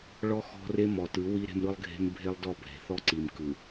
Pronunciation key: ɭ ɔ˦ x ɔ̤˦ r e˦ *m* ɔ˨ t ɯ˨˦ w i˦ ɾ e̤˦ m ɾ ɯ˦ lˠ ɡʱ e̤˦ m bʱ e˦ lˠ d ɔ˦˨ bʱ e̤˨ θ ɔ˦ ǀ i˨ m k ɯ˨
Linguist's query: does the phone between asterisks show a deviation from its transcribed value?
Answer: no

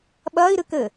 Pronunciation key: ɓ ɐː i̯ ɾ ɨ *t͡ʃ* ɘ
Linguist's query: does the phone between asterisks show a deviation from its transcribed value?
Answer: yes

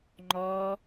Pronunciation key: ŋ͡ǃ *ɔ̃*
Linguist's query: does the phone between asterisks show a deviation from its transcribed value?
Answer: yes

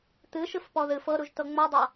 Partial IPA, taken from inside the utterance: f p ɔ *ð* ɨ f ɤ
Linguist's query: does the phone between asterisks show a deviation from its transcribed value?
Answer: no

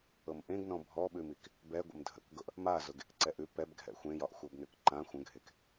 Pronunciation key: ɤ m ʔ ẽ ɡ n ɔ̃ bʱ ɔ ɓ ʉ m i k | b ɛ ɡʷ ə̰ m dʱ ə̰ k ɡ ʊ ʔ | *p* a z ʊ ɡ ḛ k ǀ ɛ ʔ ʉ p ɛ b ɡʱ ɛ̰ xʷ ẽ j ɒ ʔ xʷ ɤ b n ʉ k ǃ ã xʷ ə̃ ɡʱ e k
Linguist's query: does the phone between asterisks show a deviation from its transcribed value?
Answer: yes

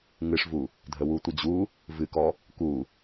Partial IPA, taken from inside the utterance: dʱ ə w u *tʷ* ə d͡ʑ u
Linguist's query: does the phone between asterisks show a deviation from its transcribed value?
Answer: no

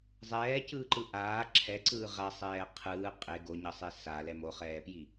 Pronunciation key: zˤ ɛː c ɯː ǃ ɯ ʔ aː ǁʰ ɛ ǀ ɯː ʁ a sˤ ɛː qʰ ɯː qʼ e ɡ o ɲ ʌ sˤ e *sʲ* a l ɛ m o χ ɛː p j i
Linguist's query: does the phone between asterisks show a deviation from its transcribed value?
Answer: yes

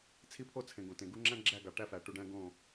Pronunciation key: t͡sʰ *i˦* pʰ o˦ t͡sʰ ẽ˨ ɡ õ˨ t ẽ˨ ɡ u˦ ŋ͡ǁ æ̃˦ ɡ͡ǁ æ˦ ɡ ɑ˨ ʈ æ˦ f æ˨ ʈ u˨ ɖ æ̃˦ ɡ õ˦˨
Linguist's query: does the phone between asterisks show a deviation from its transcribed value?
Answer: no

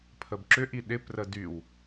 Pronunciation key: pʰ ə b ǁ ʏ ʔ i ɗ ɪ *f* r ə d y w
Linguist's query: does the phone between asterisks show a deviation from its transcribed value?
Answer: yes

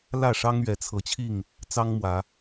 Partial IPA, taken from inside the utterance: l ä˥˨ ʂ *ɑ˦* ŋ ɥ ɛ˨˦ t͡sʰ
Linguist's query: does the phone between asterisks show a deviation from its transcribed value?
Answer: no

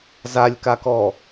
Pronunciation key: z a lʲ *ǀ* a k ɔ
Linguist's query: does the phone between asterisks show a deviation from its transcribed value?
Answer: yes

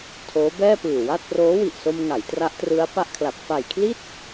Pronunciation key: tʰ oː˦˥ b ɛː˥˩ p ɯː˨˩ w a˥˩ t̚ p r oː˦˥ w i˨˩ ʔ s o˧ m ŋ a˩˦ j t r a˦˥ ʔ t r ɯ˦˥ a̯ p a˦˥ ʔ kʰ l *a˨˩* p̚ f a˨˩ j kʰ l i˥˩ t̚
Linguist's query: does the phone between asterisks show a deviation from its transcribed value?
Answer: no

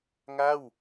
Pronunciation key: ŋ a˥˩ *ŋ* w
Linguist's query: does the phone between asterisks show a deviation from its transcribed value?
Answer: yes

